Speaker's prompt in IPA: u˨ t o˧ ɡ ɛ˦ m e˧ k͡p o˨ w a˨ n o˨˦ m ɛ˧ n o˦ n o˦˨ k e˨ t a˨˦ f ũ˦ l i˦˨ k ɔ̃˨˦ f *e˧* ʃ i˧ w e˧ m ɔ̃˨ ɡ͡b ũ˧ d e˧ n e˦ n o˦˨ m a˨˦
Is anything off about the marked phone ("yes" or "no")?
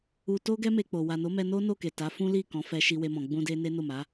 yes